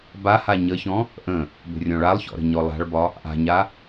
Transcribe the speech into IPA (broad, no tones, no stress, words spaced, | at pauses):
baha ɲəçɔ̃ | ʔə̃ | bə̤rʲɔ̃ɭalˠçɔ̰ ɾə̤ɲɔlˠa̤ɭbɒ | ʔa̤ɲa